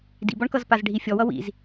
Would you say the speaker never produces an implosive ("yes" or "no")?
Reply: yes